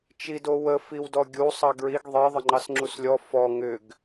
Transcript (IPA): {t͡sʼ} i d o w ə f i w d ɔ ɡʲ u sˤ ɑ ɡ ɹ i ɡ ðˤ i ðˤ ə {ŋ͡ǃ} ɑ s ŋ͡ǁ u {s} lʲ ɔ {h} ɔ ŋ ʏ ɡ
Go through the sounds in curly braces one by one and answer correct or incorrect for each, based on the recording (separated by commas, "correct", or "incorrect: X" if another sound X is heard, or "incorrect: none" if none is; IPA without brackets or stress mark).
incorrect: t͡ʃ, correct, correct, incorrect: f